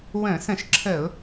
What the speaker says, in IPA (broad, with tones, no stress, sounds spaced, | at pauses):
w ə̃˧˩˧ s ə̃˧˩˧ ʃ ǁʰ ə˧˩˧ ʊ̯